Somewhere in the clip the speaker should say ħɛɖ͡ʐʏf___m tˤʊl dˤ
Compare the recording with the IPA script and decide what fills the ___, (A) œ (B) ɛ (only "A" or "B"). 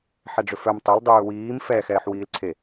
A